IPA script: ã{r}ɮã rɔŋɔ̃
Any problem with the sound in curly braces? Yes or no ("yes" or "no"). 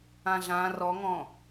yes